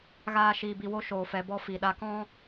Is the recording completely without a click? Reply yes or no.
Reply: yes